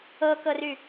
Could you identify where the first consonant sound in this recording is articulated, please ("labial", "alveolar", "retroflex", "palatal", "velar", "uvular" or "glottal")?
velar